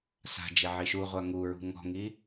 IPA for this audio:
sa̤d͡ʒe ʕiʃuʁʷa ŋuɹṳ ŋɔ̤ŋi

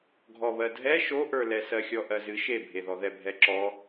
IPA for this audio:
ɡʱɔβɜdʱɛ ʃoʔə˞lɛ sɜxʲɔʔɜzɨ ʃebʱeðɔ ðɛbʱɛǁɔ

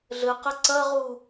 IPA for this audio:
ɮɘqɘ ǀɐʁu

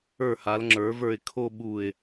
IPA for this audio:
ə˞˧˩ha˩˧l ŋ͡ǁə˞˩˧ və˞˧˩ɪ̯kʰo˥˧ɓu˧˩ɪ̯

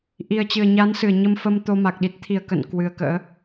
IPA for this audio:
ʔi˨˩ə̯t͡ɕɨ˧˩ə̯ɲa˨˦n sɨ˧˩ə̯ɲə˧mfə˧m t̪o˧ma˨˩k̚ɗi˦˥t̚ t̪ʰi˧˩ə̯kə̰˧˨n kwɨ˨˩ə̯kə̰ː˧˥

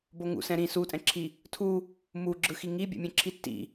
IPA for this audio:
boŋṵsɛ̃ ɾĩ sutʼɛ̃ǁʰi | tʰu | muɡ͡ǁɯxi ŋibʲḛmʲẽǁʰi tːḭ

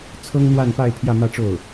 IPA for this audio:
t͡sʰɤ˥ŋn̪wa˥˧npa˥˧ɪ̯ pʰjä˥˧mä˥˧ʈ͡ʂo˥˩ʊ̯

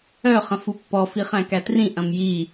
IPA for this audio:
œ χɐ̃fupːɔ fiχæ̃kætrĩ ʔɐ̃mji

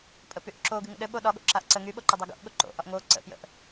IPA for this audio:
pʼəpyʔǁo ɡɨŋə̰ɗɘɓo ɗɒɠo̰ǁaʔ ǀə ŋyɓoǃə dˤɘɡo̰ʔ ɠoǃo̰ʔɒʔ ŋo ǀə̰pjə̰ʔ

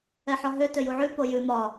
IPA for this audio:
ɛħɒɦø tøjuʕʉ pojʉ mɒ

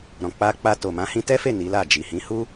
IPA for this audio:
ɾɔ̃˨ k͡pa˧k͡pa˧to˨ mã˨˦hĩ˧tɛ˦fe˦˨ ni˨˦la˦˨ d͡ʒi˨hĩ˨˦hu˦

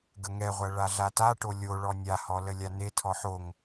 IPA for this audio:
ɡəŋɛʁʷɐ ɭaɮataʈo lʲo ɭɔnʲahɔ ləlʲanetʰɔħ oŋ

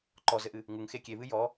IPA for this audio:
ǃɔzɘʔɨ | ŋuŋxe kʲeβɨ jɔ

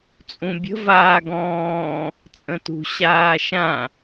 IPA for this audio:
t͡sʼũbʲə̤ vaːɡɔ̃ː | t͡sʼə̃tṳ ɕaːʃã

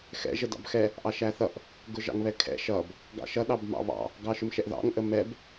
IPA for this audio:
xɛ̰ ʒədɑ̰bxɛ | ʔɑʃæθʌʔ | ɡʊʒɑ̰ŋβɛkʰɛ̰ ʃʌb | ɡɑ̰ʃʌ ɗɑbmɑ̰βɑ̰ | ɡɑʃʊmʃɛʔðɑ̰ŋ ʔəmɛb

